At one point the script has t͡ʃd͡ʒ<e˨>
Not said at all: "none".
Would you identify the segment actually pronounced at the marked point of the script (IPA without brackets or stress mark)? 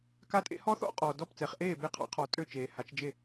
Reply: e˥˨